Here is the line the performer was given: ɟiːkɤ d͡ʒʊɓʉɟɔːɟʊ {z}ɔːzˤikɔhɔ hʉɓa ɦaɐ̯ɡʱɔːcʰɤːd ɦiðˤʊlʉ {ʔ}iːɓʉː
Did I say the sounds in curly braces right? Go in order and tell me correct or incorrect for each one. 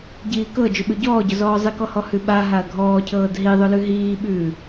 correct, incorrect

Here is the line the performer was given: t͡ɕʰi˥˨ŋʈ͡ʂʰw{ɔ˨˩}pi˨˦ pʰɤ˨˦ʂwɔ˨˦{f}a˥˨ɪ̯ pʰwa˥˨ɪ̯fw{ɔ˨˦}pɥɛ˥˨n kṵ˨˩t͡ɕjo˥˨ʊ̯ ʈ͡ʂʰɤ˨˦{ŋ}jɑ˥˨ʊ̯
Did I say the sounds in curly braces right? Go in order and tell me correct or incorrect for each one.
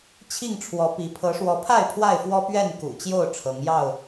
incorrect, incorrect, incorrect, correct

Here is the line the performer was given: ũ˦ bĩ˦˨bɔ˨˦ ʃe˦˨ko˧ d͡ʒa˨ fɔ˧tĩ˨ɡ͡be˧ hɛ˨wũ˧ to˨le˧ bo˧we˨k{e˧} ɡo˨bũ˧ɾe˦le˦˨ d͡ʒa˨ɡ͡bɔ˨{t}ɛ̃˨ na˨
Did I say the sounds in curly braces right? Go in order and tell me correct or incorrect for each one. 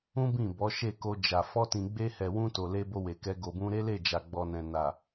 incorrect, incorrect

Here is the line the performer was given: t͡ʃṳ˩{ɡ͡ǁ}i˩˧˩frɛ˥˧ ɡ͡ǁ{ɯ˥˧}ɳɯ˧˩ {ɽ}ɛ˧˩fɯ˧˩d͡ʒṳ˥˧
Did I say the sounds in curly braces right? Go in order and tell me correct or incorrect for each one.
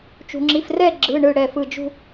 incorrect, incorrect, correct

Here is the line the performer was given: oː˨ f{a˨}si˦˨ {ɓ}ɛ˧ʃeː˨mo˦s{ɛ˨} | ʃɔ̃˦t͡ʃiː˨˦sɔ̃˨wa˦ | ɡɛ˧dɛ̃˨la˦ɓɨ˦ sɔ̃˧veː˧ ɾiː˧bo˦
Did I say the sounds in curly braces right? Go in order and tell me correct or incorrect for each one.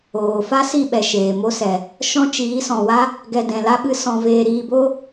incorrect, correct, correct

